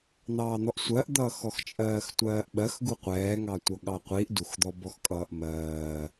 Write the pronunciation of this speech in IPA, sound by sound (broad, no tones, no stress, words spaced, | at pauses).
n̪ɑːn̪ɔʔsʷɜʔd̪ʌː xɔxt͡ʃʼɜːxtʷɜːʔɓɜx ɡuqʷɛːŋɑtʷʌ ɠɑqʷiʔ duxd̪ɔbɔx kʼʌːʔmɜː